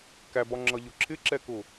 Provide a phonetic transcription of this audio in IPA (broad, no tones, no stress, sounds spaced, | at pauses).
k æ b ɒ ŋ͡ǁ ʌ ʎ ʊ ǁʰ ɪ ǁ ɛ k ʊ